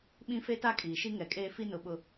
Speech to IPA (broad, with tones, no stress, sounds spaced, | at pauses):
ɓ ĩ˦ f e˦ t a˦ kʼ iː˨ ʃ i˦ ŋ ɛ˨ kʼ eː˦ f i˦ n ʊ˨ ɓ ʊ˨